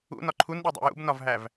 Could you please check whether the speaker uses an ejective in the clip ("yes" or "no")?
no